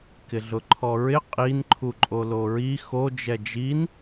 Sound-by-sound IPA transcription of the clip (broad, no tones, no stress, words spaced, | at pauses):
kɪɮʊǃʰɔɹɪ qʼin ǃʰuǃʼoloɹi xo d͡ʒɛd͡ʒin